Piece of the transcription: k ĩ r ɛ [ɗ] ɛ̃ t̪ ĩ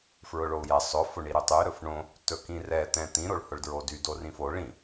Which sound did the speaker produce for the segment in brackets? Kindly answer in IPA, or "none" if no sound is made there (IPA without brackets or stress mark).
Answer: t̪